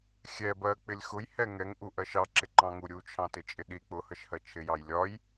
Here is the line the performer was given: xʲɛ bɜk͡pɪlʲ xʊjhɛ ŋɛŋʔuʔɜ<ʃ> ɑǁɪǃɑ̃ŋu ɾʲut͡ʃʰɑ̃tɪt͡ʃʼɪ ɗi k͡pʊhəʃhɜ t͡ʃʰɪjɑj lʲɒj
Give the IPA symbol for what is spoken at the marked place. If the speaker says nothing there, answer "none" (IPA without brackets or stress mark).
ʃ